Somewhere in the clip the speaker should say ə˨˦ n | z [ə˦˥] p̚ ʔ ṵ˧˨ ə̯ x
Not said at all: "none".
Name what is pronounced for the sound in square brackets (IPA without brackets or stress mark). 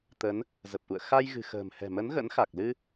ə˨˩